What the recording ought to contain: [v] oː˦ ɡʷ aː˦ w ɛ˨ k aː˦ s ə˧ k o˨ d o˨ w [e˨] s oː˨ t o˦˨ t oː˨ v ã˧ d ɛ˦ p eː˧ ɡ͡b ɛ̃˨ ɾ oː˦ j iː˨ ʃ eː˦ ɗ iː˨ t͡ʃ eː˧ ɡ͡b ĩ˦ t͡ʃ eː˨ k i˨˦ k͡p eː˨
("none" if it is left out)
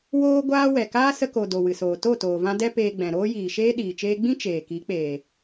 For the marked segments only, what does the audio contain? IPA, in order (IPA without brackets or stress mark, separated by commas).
w, ɨ˨